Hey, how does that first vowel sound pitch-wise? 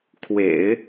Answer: low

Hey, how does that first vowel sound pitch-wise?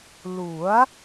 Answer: rising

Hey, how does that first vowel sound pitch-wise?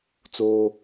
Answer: high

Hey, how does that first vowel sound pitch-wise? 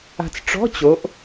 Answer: low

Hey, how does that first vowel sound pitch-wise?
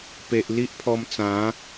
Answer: low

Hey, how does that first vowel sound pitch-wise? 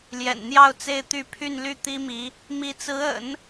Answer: low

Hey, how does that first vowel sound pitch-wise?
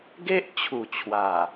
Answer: high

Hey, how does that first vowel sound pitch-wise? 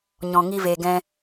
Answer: low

